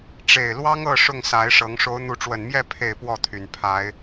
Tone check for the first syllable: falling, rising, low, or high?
falling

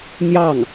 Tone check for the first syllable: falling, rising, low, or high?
falling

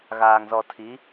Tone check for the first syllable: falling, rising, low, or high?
low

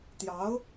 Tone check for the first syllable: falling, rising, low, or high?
rising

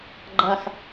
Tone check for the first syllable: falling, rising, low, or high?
falling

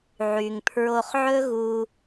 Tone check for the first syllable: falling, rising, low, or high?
low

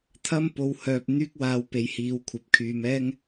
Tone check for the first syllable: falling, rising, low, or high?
high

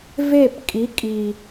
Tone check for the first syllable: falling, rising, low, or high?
falling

